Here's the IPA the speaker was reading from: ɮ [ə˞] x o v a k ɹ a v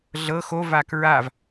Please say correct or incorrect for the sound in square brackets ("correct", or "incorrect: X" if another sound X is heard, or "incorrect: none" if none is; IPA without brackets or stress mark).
incorrect: ɤ